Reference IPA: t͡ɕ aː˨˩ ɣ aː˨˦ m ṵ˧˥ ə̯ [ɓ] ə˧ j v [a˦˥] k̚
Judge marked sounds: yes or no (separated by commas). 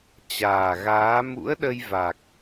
no, no